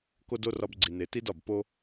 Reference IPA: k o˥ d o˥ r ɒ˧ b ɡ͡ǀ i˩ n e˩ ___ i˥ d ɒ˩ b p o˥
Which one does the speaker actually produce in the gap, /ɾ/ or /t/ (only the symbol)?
t